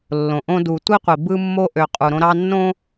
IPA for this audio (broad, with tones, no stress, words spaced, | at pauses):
lːõ˨ʔõ˦ du˨tʷi˦qʷi˨ bɯ˦mːo˦ʔø˨ qʼu˨ɾõ˦ɾɑ˦nːõ˦